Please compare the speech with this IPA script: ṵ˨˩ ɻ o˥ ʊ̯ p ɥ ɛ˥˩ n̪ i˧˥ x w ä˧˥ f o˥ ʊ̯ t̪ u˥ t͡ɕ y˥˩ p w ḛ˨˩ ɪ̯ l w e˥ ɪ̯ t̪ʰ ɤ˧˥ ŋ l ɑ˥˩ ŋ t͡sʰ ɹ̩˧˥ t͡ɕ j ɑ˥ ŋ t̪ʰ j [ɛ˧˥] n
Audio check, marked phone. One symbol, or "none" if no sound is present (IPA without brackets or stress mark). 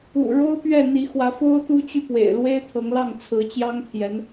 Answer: ɛ˧˥